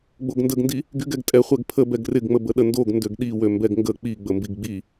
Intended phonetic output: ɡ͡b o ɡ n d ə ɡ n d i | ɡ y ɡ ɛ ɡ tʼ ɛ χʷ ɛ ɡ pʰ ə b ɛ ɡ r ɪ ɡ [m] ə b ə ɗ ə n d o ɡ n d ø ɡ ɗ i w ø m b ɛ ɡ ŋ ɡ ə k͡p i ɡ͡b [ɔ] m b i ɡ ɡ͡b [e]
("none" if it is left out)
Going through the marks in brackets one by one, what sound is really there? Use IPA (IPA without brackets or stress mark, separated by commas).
ŋ͡m, ə, i